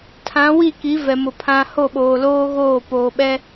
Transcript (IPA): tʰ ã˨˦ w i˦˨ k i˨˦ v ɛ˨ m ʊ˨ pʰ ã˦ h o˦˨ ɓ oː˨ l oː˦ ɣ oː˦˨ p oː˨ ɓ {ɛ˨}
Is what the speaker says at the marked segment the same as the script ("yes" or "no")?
no